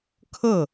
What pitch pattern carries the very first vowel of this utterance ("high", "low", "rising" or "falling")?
falling